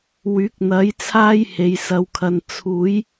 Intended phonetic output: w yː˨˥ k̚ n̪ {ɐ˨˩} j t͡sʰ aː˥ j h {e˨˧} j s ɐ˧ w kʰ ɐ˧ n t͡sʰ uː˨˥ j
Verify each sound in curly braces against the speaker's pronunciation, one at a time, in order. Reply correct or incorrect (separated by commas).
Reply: incorrect, correct